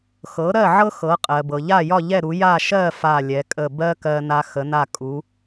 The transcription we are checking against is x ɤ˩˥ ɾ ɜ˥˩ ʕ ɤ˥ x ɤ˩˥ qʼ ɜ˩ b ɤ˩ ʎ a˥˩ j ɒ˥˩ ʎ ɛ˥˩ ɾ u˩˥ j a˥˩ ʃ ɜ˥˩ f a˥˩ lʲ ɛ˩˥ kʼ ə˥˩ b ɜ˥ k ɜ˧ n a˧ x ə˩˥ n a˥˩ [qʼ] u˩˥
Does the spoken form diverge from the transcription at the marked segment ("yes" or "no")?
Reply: yes